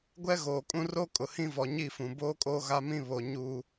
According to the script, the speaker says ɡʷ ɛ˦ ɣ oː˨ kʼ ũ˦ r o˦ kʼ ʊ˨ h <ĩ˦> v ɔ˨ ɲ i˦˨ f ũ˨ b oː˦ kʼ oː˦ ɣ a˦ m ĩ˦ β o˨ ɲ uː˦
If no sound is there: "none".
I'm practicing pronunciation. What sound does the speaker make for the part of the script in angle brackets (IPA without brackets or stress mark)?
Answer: ĩ˦